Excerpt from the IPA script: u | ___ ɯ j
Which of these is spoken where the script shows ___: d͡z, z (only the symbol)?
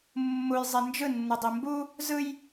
z